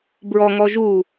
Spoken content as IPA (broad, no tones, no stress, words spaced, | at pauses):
bɹɔŋɔ ʒu